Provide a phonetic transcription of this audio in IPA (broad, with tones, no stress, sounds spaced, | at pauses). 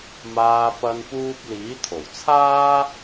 m aː˧ p ɐ˧ n p uː˧ p̚ l iː˨˥ t̪ʰ o˨˩ w t͡sʰ aː˥